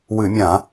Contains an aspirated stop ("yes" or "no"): no